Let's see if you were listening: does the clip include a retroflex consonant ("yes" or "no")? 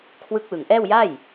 no